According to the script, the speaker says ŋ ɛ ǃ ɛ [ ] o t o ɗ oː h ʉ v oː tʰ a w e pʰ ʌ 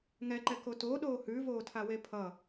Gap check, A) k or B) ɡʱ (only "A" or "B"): A